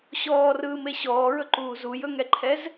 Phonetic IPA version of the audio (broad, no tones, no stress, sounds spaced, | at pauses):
ɕ ɔː r ɯː m e ɕ ɔː ɹ ɵ ǃ uː z u j ɵ ŋ ɛ ǃʰ ɛ z